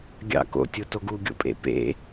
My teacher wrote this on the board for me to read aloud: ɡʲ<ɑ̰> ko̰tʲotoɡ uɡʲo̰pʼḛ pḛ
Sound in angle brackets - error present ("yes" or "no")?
no